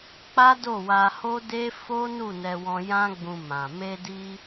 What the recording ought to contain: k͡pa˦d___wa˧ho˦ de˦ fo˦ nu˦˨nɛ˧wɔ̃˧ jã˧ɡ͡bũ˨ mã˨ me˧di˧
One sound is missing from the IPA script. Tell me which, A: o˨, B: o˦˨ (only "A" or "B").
B